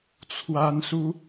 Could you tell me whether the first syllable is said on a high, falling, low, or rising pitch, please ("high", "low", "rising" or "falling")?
high